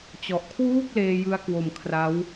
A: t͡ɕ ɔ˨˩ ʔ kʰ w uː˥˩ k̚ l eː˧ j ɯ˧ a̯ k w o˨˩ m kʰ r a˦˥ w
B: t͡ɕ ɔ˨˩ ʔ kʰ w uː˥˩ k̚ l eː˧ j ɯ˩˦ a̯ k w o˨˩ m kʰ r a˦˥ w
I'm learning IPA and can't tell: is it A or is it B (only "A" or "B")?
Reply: A